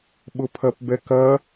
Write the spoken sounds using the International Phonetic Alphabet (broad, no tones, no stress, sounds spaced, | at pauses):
ɓ ʊ pʰ ɐ p b ɛ k ɐ